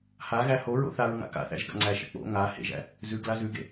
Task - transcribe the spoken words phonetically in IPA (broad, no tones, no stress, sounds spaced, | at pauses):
h a ɣ æ h o ɹ o̰ θ a ɹ ŋ a̰ k a̰ θ æ̰ ʒ ɡ a̰ ŋ͡ǀ æ ʃ ɪ k͡p o̰ ŋ a h ḛ ʒ æ̰ | z ʉ ɡ l a z ʉ ɡ ḛ